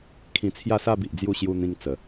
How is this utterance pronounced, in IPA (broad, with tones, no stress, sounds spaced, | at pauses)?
kʰ ĩ˧ t͡sʰ j a˥˧ s a˥˧ b i˨ ʔ d͡z j u˥˧ ɕ j u˧ n̪ ĩ˧ ŋ t͡s ə˨˩